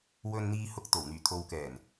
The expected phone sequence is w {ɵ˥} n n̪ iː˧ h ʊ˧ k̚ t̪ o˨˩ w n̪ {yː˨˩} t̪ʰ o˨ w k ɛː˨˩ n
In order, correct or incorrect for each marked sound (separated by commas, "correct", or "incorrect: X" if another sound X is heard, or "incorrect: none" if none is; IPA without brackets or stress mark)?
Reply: incorrect: ɵ˧, correct